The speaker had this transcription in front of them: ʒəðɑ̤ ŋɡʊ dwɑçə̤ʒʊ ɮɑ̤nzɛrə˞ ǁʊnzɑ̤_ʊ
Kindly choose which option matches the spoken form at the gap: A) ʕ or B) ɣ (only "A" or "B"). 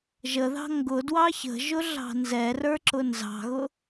B